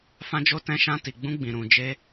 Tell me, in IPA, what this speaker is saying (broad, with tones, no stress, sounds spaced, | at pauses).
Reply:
f ã˦ d͡ʒ o˦ t ɛ̃˦ ʃ ã˦ t i˧ ɡ͡b ũ˦ ɡ͡b ĩ˧ ɾ ũ˧ d͡ʒ e˦